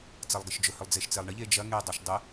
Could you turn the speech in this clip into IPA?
t͡sɐlˠɡɪʃd͡ʒʊ hʏlˠd͡zeʃt͡selˠɳɪ ʎed͡ʒɐ ŋe dˤɐʃdˤɪ

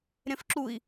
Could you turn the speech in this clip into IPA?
ɾẽfǁui̯

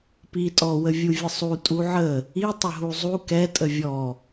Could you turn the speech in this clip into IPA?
pi tʼɔwə vʲuvʲəsˤu tʼuʕə | i tˤəɦuzˤu kɛ tʼəvʲɔ

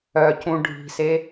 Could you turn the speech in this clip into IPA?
œcũ ɖʱi̤se

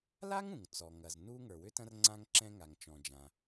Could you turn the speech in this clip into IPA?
la˥ŋũ˩ŋ t͡sɔ˩ŋɐ˩z nu˥ ŋə˞˩wʏ˥tɐ̃˥r ŋ͡ǀã˥ŋǁɛ̃˥ŋa˩ŋ t͡ʃɔ̃˩d͡ʒã˩

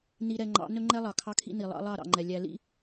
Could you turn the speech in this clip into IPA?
ni˨ɾɛ˨ŋ͡ǃɑ̰˨˦ nɵ˦ŋ͡ǃɛ˦lˠɑ˨ kʰɑ˦kʰḭ˦ni˨ lˠɑ̰˦lˠɑ˦˨ɾɑ̰˨ŋ͡ǃɛ˨ lʲæ˨lḭ˦

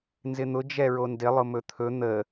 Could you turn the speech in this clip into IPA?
nzɪn̪ʊ d͡ʒɛɹondɪ lˠʊmɵt̪ʰɵ n̪ə

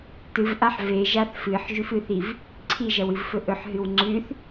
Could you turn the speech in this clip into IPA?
tɨvʔaħ veʒaθ fɨħʒʉfɨθiv | ǀʰiʒɐwɨvfɵ ʔɵħɦɨw ŋ͡ǀʉθ

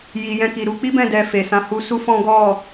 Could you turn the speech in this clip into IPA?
ji˨jɛ̃˧ki˨ ɾu˧k͡pi˦bɛ̃˦˨ dɛ˧fe˨ sã˨˦hu˧su˦ fɔ̃˦ ɡɔ˦˨

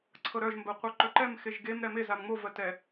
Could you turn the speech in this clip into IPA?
ǀʰɤɾœʒ mbɜqʷœǃœǃɛm xeʒɡem ɾɛme zamŋ͡mo vɜtɛ

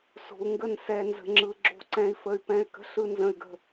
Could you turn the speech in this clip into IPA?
so̤˨u̯ŋɡə˦˨n sɛ˨ nzə̤˨ŋ͡ǁɯ˨ ɡ͡ǁo̤˦˨ǀɛ̃˦i̯fə˦y̯pɛ̃˦y̯ kə̤˦ɬɯ˦nzə̃˦y̯ɡə̤˦

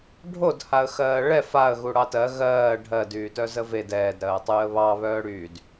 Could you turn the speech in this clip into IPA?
ɖʱodhaə̯ xɜːɭɛ faə̯ɣu ɽɑtɜ ɣɜː ɖʱɜdyː tœzəved ɛːdɾɜːtˤyːə̯ βɑ βœːɽyd

